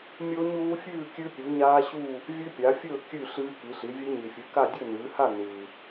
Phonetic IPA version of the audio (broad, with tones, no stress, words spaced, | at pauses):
mʲoː˦˥ɲuː˦˥fʲʉː˥˧ kʲʉ˦˥pʲu˨˦ɲaː˦˥ɕuː˥˧ | vʲʉ˦˥pʲa˨˦fʲɵː˥˧ kʲʉ˥˧ ɬɨː˦˥ki˨˦ɬi˨˦ vʲe˦˥ɲi˨fʲɨ˨˦ka˥˧ dʲɵ˥˧nɨː˨˦ha˥˧ nɨː˨